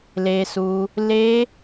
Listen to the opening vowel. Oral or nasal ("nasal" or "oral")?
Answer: oral